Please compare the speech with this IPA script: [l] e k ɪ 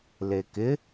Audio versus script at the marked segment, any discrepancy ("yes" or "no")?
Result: no